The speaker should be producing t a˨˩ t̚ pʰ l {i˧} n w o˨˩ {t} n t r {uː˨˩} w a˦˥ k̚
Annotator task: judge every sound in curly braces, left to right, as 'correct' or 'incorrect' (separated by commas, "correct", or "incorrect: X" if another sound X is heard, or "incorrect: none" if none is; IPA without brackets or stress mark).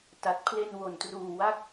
incorrect: e˧, incorrect: none, correct